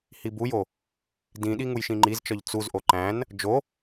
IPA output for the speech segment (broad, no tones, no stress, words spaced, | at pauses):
hibujo | dĩɗi ŋujʃĩŋ͡ǃizt͡ʃɒʎ t͡suzʔo ǃæ̃n | d͡ʒo